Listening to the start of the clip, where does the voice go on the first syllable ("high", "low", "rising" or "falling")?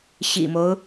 low